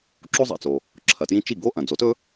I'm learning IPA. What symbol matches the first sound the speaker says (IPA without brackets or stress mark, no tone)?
ǁ